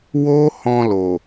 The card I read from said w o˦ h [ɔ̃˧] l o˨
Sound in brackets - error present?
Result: no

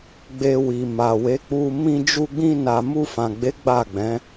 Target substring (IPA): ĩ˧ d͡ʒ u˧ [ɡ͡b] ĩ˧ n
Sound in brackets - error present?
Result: no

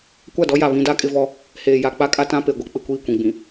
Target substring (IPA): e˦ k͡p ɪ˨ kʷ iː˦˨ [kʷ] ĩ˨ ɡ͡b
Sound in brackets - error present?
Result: no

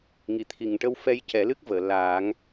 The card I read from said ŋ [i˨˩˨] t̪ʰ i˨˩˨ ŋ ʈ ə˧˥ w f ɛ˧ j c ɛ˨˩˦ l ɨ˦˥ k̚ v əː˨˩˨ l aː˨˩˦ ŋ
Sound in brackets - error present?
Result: no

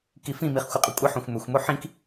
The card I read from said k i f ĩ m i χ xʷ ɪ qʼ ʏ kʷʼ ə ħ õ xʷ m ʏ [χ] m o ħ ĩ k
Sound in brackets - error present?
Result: yes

